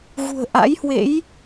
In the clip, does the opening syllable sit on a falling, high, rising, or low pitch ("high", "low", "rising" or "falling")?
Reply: low